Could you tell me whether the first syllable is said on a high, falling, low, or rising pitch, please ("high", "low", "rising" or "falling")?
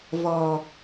low